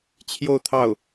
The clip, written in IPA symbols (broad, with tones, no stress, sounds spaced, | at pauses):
t͡ɕʰ j o˥˧ ʊ̯ t̪ʰ ɑ˥˩ ʊ̯